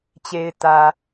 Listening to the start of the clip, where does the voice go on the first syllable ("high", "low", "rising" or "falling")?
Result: low